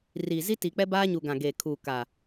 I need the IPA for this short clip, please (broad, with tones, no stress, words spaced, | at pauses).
riː˨zi˦ ti˨k͡pɛ˦baː˦ɲu˨ ɡã˨ɡeː˨kʰuː˨ ka˨